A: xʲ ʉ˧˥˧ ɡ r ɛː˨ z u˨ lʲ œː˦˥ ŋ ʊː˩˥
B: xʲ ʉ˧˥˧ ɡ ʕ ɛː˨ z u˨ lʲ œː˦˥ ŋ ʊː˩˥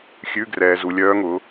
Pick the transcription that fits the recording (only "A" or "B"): A